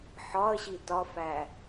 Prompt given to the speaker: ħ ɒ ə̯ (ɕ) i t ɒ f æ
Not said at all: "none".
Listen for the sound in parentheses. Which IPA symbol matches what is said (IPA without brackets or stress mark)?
ɕ